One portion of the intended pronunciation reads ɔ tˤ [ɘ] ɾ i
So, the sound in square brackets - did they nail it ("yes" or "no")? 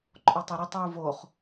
no